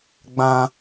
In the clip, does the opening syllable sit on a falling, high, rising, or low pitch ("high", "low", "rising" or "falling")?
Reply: high